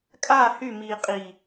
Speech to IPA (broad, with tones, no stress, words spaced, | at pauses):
kʼaː˦˨hy˦˨miː˨qʼi˨